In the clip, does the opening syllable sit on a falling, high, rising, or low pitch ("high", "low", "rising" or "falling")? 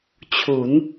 rising